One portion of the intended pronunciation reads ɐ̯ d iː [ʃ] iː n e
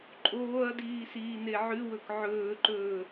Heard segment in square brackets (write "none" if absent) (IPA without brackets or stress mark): s